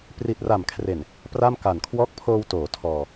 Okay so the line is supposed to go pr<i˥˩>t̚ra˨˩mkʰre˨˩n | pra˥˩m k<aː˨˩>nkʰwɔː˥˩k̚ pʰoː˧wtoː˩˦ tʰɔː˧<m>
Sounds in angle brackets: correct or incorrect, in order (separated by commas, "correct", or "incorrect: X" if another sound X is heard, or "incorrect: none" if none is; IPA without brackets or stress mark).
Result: incorrect: i˨˩, incorrect: a˨˩, incorrect: none